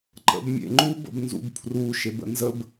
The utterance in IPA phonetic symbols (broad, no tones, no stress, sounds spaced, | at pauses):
ǃ ə̰ b mʲ ḛ ŋ͡ǃ u b ə̰ b n z ṵ b pʰ r u ʃ e b ə̰ n z ə b